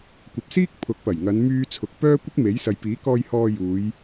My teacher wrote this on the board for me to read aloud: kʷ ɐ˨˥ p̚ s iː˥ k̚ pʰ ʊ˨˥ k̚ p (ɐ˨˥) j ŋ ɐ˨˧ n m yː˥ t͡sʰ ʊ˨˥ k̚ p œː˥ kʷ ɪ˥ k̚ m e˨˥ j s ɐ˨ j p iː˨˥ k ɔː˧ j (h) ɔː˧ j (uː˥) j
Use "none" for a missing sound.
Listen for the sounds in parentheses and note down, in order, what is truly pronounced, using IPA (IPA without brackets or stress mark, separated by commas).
ɐ˨˩, h, uː˨˧